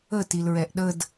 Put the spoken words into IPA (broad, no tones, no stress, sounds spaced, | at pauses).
ə t i l ɹ ɛ ʔ ɗ ə d